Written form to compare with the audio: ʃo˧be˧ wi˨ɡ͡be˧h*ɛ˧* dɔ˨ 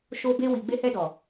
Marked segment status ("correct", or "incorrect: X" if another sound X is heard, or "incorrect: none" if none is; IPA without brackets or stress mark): correct